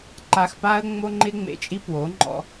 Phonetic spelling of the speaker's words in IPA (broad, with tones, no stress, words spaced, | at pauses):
ǃa˨xpa˦ə̯ ŋ͡mo˦ŋ͡ǃɪ˦ŋ͡mḛ˨t͡ʃʼi˦ pwo˨˦ŋ͡ǃɔ̰˦